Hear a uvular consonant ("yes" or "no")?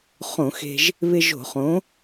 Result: yes